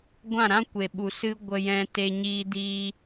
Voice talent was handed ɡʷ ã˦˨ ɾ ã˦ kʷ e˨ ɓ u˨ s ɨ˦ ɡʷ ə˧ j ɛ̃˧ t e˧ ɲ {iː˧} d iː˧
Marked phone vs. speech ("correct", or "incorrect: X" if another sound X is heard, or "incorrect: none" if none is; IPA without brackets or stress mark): correct